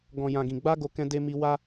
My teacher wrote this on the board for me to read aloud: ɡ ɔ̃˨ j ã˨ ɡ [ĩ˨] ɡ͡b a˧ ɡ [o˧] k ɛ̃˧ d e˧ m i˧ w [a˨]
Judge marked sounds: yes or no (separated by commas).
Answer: yes, yes, no